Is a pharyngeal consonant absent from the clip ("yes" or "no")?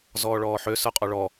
no